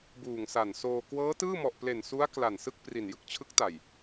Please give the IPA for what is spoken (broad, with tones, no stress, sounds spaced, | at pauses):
b uː˨˩ ŋ s a˨˩ n s oː˧ k w ɤː˦˥ t ɯː˥˩ m ɔ˨˩ ʔ p l e˨˩ n s u˦˥ a̯ k l a˨˩ n s ɯ˥˩ k̚ p r i˨˩ n j ɯ˨˩ k̚ t͡ɕʰ ɯ˦˥ k̚ t a˨˩ j